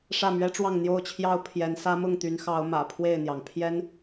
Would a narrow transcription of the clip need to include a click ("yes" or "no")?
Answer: no